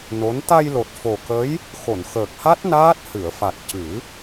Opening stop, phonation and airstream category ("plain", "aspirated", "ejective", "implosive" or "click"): plain